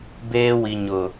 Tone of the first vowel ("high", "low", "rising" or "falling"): high